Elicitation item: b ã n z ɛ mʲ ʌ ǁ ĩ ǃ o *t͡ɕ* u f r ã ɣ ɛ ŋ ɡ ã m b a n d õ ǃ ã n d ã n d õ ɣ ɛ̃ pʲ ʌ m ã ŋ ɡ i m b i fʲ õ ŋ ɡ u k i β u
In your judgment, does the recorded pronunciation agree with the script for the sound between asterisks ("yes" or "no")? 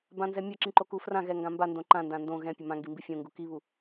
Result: no